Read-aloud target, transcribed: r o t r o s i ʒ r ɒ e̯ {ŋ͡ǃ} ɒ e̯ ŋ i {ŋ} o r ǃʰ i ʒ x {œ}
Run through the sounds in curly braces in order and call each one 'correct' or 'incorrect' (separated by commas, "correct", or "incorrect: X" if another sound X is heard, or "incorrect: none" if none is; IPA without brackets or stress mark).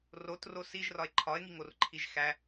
incorrect: ǃʰ, correct, incorrect: æ